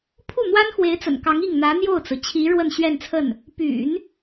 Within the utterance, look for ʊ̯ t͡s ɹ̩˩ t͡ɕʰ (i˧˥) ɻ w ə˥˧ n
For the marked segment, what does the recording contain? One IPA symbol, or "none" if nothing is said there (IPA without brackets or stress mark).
i˧˥